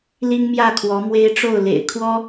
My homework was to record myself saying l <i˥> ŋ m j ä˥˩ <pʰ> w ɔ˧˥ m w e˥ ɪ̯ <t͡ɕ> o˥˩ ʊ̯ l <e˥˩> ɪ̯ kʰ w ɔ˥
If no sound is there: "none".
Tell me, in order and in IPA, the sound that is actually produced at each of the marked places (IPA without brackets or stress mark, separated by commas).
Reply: i˥, kʰ, ʈ͡ʂ, ḛ˨˩